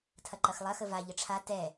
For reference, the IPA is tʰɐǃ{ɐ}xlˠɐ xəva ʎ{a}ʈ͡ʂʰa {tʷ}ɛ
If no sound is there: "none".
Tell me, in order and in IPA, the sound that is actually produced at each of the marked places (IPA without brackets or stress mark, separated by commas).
ɐ, ə, t